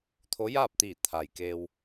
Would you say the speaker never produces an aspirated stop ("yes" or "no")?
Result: no